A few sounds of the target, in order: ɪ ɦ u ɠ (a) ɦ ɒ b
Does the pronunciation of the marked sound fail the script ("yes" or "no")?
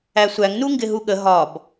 yes